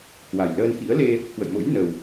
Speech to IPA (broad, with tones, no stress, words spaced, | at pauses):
kwa˨˩jləː˧n xḭ˧˥ə̯le˧ | kwə̰˧˨jmo̰˧˥jnə˨˩w